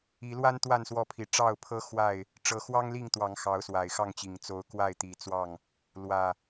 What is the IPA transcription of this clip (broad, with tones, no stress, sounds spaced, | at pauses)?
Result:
i˨˦ l w a˦ n t̪ w a˥˨ n s w ɔ˥˨ pʰ i˨˦ ʈ͡ʂ ɑ˥˨ ʊ̯ pʰ ɤ˦ x w a˥˨ ɪ̯ | ʈ͡ʂ ɤ˨˦ x w ɑ˦ ŋ l i˥˨ ŋ t̪ w ɑ˨˦ ŋ x ɑ˨˦ ʊ̯ s w a˨˩ ɪ̯ x ɑ˥˨ ŋ t͡ɕ i˨˩ ŋ t͡s o˨˦ ʊ̯ k w a˥˨ ɪ̯ t̪ i˨˦ t͡s w ɑ˥˨ ŋ | l w ä˨˩